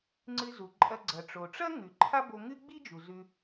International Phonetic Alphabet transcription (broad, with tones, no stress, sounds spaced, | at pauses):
ŋ͡ǀ ɨ˧ z u˩ ǃʼ ɐ˧ ɡ͡ǀ ɐ˩ ʈ͡ʂ o˩ ʈ͡ʂ ɐ˥ ŋ ʉ˩ ǃʰ a˥ b o˧ ŋ ɨ˥ ɡ͡b i˥ d͡ʒ u˩ z ʉ˧